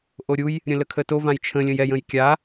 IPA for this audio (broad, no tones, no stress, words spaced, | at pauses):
ʔoɾʲuj | ɾʲə̃ləkʰəto vãjt͡ʃʰə̃ lʲə̃jɛj ə̃jkʲa